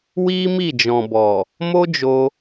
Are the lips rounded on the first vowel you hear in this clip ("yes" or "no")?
no